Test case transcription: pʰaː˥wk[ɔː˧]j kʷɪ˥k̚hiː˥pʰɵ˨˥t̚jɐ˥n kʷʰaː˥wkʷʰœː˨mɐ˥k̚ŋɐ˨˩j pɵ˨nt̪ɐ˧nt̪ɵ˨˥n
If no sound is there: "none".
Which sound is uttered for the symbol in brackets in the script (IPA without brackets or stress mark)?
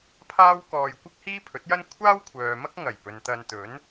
ɔː˧